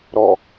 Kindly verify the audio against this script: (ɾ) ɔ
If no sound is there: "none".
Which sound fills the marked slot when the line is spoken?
ɾ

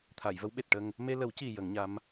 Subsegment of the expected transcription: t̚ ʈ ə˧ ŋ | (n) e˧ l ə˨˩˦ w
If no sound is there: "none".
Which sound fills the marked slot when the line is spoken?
m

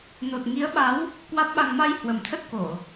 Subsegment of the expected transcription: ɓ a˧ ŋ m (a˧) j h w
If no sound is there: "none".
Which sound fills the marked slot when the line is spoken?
a˧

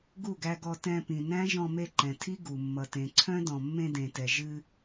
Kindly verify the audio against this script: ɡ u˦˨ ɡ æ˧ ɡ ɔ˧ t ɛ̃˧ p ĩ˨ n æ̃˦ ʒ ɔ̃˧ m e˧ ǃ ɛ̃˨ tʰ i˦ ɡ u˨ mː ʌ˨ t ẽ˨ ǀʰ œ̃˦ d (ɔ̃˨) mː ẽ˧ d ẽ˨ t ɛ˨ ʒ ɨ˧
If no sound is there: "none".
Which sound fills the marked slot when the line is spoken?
ɔ̃˨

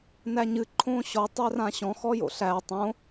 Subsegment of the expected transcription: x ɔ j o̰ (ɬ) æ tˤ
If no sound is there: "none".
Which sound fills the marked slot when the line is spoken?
ɬ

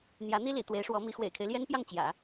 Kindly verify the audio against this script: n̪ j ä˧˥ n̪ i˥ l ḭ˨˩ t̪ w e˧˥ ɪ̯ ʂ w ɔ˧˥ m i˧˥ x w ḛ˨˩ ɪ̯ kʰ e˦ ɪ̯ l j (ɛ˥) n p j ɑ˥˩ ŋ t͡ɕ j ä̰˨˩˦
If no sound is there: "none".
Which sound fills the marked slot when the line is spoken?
ɛ˥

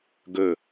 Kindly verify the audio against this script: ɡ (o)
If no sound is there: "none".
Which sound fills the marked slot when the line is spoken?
ɵ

